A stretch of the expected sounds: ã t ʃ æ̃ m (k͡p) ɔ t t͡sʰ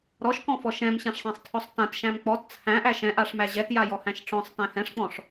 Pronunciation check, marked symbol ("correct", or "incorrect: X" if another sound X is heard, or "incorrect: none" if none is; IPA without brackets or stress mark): correct